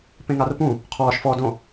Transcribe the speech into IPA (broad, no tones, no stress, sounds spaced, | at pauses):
p ẽ ŋ a r p ũ | qʰ ɔː ʃ f ɔː d õ